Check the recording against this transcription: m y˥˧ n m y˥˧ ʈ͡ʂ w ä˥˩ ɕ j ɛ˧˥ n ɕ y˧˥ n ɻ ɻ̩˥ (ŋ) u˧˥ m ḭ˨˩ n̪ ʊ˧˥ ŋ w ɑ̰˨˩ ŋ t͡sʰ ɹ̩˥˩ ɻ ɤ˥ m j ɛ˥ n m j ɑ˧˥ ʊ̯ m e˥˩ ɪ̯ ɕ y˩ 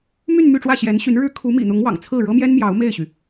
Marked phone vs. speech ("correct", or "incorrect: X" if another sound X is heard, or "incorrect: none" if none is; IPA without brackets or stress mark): incorrect: kʰ